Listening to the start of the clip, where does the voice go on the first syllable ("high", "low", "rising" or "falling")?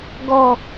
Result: low